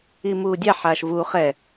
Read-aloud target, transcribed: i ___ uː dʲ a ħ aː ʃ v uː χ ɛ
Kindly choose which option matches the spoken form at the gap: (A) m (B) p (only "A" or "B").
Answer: A